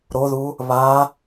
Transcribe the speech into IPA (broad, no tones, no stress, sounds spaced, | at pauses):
ɾ o ð u | β a